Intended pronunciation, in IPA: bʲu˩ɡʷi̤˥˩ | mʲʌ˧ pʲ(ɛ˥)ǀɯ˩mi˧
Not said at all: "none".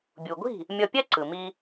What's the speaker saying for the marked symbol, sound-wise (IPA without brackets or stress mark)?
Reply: ɛ˥